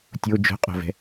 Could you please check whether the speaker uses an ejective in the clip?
yes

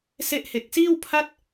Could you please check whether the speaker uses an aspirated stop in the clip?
yes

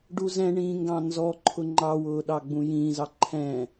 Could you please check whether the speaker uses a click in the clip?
yes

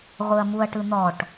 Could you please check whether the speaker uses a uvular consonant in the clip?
yes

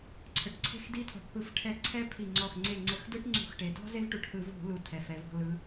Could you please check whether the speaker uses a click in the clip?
yes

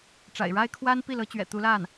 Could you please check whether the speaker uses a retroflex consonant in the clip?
yes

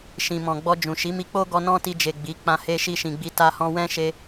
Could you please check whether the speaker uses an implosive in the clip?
no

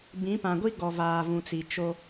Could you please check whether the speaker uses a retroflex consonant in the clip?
no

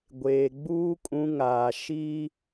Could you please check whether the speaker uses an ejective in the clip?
yes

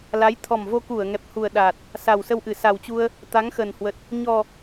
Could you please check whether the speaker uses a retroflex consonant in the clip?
no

